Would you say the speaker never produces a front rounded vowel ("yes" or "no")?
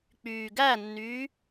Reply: no